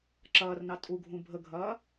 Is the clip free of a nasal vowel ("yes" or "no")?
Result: no